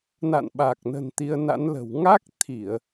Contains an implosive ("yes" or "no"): yes